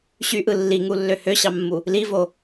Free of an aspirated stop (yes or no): yes